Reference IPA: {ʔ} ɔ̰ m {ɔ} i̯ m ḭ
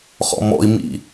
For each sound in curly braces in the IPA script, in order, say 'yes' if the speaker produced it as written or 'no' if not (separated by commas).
no, no